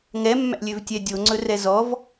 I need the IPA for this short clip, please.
ŋɛmːæ̰lʲøvtʲɛ dʲoŋ͡ǀɵrɛ zɔv

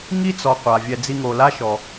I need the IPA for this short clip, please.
ŋi˦t͡sɔ˨ qʷa˨vʲɛ˧ d͡zi˧ŋo˨la˦ʃɔ˨

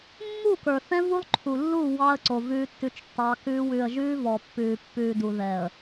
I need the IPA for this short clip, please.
mːu˦˨kə˞˨θɛ̃˦ vu˦lˠǃʰu˨lːu˦˨ wɑ˦ə̯ǀo˨ vʉː˦tːʉ˦t͡ʃtːɑ˦kʉː˦ wʉ˨ə̯ ʒʉː˦vɔ˨ pːʉː˨pːʉː˨ du˨ðɛ˨ə̯

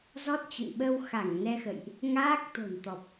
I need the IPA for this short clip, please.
zɔ˦˥t̚t͡ɕə̰˧˨n ɓə˧w xa˧˩ŋ nɛ˧xə̰˧˨jʔ | ŋaː˦˥k̚t̪o̤˨˩n t̪ɔ˨˩p̚

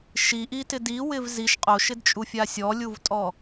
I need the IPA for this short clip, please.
ʃiʔitɪ diwɪv ziʃ qʼoʃɪdt͡ʃʼufʲa sʲɔlʲuvtʼɔ

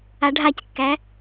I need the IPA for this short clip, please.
aɖʱackːæ

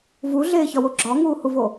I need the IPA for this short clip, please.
vuɮeːçɒwo ɡ͡ǁɒŋuːhuvo

